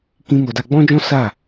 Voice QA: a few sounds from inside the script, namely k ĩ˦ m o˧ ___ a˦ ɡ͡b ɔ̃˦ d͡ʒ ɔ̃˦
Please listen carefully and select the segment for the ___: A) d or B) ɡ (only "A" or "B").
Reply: A